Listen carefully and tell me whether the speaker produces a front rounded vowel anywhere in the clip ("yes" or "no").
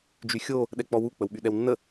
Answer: yes